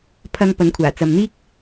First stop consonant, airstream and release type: aspirated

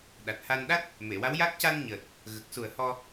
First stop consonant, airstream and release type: implosive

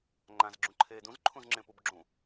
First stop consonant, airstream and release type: click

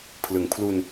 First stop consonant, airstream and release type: aspirated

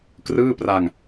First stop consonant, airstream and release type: plain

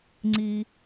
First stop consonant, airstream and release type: click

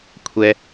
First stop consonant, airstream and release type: aspirated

